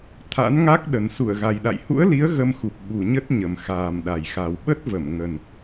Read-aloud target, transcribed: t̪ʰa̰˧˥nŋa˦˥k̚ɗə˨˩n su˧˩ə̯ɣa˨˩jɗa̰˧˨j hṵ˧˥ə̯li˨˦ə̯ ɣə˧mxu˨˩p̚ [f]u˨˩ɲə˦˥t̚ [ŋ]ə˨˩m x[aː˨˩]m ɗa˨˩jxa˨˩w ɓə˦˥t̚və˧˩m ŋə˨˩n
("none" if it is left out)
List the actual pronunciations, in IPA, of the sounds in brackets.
ɓ, ɲ, aː˨˩

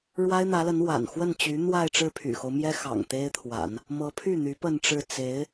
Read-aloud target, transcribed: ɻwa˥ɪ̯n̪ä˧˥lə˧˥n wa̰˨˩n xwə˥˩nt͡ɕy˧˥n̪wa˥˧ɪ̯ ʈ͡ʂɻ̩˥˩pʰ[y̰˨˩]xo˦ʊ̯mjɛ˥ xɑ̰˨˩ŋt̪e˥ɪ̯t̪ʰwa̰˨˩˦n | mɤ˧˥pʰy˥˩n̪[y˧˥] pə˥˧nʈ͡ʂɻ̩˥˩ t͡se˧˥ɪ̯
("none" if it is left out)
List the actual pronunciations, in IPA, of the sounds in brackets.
y̰˨˩, y˧˥

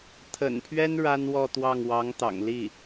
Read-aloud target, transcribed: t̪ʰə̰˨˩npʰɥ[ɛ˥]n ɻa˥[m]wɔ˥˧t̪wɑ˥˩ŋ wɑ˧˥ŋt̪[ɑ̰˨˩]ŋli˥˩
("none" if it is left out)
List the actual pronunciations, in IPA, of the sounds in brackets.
ɛ˥, n, ɑ̰˨˩

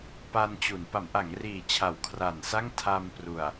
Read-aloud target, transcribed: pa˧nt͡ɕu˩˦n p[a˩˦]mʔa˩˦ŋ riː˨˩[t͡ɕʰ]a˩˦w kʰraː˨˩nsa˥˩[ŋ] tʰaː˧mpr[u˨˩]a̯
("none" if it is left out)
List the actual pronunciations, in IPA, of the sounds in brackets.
a˩˦, t͡ɕʰ, ŋ, u˨˩

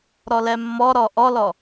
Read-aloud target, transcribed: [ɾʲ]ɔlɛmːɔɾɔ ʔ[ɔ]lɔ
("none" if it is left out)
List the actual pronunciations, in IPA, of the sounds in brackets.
ɾ, ɔ

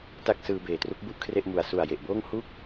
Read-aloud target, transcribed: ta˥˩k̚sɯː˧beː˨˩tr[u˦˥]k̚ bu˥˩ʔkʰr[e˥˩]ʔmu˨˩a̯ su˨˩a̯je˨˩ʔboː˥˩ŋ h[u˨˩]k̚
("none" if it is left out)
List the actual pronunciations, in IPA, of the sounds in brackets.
u˦˥, e˥˩, u˥˩

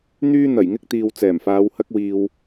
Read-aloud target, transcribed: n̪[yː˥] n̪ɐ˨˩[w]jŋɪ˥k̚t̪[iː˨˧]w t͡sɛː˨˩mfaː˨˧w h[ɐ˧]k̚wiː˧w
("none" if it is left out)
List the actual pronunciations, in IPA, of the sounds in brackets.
yː˥, none, iː˨, ɐ˥

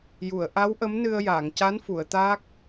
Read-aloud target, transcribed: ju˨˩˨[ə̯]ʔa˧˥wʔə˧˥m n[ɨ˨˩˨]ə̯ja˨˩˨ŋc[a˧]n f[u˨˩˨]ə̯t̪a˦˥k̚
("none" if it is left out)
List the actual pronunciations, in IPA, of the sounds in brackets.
ə̯, ɨ˧, a˧˥, u˨˩˨

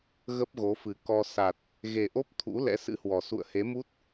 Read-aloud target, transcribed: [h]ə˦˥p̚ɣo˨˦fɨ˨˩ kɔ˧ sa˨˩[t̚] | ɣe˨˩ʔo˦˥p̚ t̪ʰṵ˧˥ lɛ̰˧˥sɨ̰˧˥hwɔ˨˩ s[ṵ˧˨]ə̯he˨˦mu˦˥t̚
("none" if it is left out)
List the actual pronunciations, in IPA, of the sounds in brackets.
ɣ, t̚, ṵ˧˨

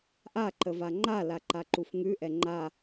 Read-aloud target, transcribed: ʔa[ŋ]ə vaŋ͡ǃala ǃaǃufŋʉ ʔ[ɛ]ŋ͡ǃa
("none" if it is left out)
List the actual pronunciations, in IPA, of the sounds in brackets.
ǃ, ɛ

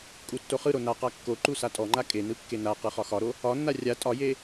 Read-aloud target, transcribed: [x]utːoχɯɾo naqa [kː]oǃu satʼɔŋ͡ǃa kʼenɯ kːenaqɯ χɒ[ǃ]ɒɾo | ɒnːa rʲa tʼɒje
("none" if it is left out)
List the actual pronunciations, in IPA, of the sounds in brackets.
kʼ, kː, x

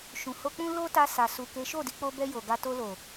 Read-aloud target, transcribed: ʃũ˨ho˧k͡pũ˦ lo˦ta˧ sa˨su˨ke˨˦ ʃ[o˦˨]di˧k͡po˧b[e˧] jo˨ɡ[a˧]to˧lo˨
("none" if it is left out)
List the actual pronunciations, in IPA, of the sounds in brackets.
o˦˨, ɛ˧, a˧

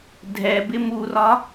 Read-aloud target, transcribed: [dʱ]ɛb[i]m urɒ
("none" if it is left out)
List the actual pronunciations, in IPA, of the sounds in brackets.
dʱ, ɪ

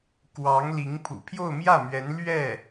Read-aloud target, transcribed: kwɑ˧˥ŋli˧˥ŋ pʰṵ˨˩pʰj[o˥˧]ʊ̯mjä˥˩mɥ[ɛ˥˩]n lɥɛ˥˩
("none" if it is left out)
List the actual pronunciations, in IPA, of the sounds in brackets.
o˥˧, ɛ˧˥

